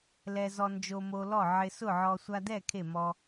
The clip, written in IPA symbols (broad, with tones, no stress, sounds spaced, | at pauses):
l ɛ˧ z ɔ˧ n d͡ʒ o˧ m o˧ l ɔ˥˨ ʕ ɪ˧ s ʊ˥˨ ʕ ɔ˧ sʷ a˧ d ɛ˥˨ kʰ e˥˨ m ɔ˧